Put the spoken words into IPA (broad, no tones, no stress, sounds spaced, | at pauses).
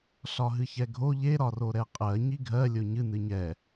ɬ ɒ ɦ ɨ ç ɛ ɡʱ o ʎ e ɾ ɒ r o ɾ ɛ qʼ ɜ ɲ i ɡʱ ɜ lʲ o ɲ ɨ n ɨ ɲ ɛ